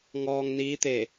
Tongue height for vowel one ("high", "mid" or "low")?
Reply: mid